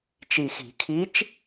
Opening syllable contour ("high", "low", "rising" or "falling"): low